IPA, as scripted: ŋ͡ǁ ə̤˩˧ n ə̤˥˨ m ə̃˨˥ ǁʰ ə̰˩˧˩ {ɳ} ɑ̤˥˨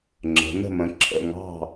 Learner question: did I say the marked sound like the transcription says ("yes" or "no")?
no